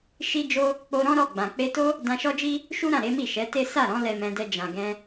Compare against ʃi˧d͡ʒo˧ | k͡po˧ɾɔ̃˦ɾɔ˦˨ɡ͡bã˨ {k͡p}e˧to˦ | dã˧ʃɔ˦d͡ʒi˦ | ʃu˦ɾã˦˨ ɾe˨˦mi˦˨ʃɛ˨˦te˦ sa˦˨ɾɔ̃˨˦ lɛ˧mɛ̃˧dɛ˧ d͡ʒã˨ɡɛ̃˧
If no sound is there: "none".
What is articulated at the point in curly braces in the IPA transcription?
k͡p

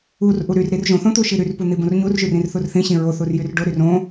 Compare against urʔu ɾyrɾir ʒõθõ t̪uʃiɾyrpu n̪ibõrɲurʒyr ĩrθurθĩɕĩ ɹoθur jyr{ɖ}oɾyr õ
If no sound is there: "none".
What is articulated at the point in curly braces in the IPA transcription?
ɖ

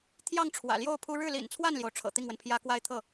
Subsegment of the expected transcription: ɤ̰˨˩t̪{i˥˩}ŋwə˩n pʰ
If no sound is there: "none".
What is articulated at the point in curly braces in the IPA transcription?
i˥˩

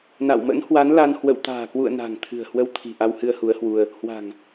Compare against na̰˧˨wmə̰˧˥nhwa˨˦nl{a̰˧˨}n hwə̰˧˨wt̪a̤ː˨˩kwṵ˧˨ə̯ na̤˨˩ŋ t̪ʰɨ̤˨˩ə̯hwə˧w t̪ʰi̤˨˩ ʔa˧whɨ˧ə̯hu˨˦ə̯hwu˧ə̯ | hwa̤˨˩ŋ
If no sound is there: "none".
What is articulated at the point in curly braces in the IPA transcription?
a˧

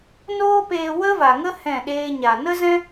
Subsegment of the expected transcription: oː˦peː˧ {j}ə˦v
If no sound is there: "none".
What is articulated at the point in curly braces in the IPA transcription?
w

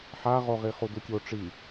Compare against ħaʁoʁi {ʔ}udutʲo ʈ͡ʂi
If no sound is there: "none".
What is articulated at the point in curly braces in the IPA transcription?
χ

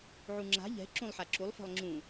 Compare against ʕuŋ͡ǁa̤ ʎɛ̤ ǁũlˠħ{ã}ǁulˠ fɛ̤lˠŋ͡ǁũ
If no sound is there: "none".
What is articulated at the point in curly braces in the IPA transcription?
a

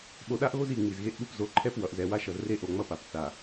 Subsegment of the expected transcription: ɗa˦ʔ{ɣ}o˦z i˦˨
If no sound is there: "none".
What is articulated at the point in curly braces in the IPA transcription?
ɣ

